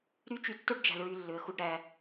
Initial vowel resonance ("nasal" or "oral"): oral